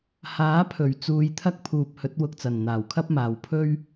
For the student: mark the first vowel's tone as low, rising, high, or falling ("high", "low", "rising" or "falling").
rising